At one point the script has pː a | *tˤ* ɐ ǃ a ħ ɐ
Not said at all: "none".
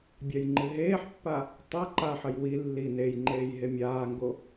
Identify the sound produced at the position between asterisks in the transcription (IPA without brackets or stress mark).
tˤ